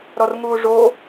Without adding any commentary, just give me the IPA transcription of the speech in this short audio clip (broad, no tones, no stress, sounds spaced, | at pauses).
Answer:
ɾ ɔ r ŋ uː ʐ o